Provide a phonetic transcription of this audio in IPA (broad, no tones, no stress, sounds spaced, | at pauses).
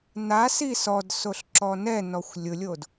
n a s i s ɔ d s o ɬ ǁ ɔ n ɛ n ɔ xʷ lʲ ʊ lʲ o d